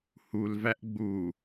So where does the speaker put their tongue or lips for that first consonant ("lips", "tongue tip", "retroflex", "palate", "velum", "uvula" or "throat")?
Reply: throat